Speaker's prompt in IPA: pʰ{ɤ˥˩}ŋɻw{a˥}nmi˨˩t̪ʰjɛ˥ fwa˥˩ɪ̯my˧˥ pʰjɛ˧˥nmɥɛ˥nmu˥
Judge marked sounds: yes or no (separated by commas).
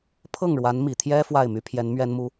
yes, no